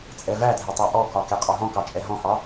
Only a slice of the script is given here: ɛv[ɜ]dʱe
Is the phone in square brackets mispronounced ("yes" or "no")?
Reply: yes